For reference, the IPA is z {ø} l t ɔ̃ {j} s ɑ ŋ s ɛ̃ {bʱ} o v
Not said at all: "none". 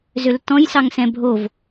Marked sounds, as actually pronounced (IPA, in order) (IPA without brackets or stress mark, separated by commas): ø, j, bʱ